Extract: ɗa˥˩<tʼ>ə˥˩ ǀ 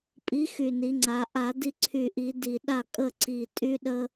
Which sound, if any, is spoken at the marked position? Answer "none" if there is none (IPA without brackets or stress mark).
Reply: kʼ